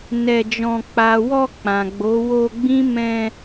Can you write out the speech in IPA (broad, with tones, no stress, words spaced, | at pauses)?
nɛ˧d͡ʒɔ̃˧ k͡pa˨wɔ˧ k͡pã˨ɡ͡bo˨˦ wo˧ ɡ͡bĩ˦mɛ̃˧